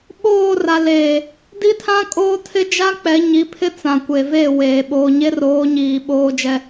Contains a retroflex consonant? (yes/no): no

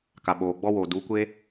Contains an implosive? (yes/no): yes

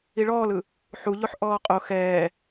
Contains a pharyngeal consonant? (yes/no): yes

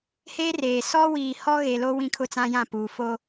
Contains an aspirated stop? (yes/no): yes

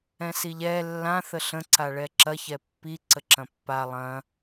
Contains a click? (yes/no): yes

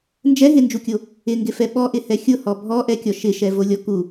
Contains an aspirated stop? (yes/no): no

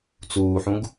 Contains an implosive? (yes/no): no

